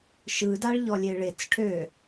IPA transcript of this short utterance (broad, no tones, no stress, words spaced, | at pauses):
ʃɯdaɭ ʎɔlʲeɭet͡s ʈʰø